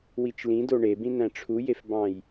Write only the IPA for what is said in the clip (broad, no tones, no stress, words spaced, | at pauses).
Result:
wit͡ʃlĩdo ɳebĩ næ̃ʈ͡ʂʰujefbɑ̃j